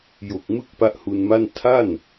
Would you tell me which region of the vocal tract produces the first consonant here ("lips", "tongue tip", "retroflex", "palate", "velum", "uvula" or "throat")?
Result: palate